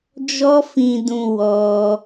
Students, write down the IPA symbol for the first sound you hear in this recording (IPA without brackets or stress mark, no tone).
d͡ʒ